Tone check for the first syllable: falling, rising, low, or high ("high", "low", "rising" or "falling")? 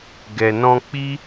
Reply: low